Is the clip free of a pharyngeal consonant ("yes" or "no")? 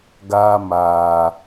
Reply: yes